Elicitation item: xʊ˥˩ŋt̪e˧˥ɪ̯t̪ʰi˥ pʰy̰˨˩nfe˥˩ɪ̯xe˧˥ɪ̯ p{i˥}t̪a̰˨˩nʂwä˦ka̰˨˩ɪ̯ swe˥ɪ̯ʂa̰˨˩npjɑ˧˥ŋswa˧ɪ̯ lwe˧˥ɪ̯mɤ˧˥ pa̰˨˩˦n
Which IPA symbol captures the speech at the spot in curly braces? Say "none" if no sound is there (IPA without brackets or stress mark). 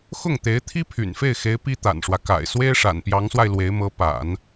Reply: i˥